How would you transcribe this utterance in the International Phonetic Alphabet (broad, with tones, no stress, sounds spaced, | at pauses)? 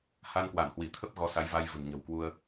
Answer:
h a˧ n k w a˧˩ n h w i˧˩ t̪ʰ ə˦˥ p̚ ɣ ɔ˨˦ s a˨˦ j v a˧ j v ə̤˨˩ n ɲ ə̤˨˩ w k w u˧ ə̯